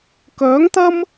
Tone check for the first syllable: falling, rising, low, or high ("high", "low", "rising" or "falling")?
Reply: rising